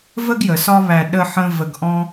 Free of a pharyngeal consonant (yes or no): no